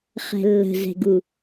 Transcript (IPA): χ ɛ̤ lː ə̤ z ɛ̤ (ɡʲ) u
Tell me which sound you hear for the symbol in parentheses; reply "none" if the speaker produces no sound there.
ɡ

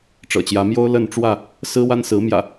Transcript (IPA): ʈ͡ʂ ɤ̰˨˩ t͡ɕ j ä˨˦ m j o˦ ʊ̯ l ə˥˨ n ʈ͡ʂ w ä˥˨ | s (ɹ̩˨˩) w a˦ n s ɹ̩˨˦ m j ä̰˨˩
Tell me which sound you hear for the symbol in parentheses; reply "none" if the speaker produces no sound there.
ɹ̩˦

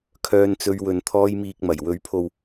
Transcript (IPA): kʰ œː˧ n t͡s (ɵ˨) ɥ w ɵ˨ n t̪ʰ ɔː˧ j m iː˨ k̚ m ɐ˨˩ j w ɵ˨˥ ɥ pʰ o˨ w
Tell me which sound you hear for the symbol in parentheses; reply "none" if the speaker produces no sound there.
ɵ˧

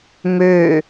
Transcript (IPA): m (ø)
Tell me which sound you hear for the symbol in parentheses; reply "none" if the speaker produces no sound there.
ø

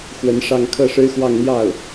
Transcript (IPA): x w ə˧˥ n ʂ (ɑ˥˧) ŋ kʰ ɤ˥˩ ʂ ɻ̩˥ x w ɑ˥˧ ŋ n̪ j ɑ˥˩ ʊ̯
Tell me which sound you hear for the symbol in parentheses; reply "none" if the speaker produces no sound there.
ɑ˥˧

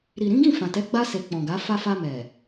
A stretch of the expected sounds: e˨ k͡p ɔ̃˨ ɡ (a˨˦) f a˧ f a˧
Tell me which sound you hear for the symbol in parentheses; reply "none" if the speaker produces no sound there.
a˨˦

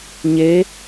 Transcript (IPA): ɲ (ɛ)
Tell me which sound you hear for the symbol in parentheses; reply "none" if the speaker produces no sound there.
e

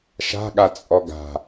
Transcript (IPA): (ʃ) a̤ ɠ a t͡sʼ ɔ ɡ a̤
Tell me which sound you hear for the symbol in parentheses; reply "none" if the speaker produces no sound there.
ʃ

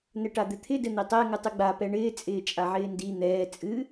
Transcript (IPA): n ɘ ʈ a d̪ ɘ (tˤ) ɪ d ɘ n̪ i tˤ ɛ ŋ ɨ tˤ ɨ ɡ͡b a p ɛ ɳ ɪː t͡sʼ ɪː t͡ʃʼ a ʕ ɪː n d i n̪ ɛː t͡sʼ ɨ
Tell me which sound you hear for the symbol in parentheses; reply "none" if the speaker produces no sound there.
t̪ʰ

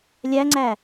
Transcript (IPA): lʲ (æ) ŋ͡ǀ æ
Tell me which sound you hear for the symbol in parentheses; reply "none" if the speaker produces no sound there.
æ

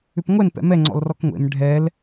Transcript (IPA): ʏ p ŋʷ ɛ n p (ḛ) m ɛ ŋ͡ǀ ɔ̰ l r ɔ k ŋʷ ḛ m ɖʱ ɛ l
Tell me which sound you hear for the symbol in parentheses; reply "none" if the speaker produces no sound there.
ɛ̰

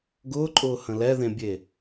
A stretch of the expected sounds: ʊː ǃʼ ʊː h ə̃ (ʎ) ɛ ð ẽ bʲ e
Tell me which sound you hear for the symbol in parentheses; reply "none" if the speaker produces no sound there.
l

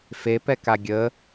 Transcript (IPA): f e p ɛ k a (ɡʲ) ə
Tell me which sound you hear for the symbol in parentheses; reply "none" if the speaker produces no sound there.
ɡʲ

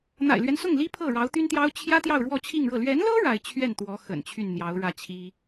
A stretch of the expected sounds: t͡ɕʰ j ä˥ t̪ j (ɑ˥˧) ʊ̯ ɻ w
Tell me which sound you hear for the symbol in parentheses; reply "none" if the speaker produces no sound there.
ɑ˥˧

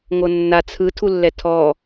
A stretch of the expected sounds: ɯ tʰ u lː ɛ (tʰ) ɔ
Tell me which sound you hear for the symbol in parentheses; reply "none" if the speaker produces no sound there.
tʰ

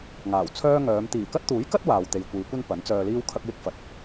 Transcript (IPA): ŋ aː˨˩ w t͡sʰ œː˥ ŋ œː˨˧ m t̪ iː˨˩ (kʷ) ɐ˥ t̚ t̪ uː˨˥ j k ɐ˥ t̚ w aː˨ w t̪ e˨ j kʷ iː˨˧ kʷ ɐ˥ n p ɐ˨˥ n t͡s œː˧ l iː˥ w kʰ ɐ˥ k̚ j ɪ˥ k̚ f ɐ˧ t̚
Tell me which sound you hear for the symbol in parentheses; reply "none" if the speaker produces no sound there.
k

